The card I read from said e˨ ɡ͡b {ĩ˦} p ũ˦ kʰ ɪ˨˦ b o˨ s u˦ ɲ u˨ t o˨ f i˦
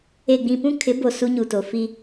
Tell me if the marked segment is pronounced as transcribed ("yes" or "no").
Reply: no